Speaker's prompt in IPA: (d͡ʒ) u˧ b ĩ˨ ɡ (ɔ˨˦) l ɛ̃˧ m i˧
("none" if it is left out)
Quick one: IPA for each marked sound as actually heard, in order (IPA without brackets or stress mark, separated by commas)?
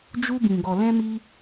d͡ʒ, ɔ˨